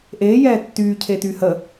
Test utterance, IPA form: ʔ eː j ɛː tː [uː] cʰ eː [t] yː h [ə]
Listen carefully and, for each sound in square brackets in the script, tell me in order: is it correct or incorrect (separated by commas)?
incorrect, correct, correct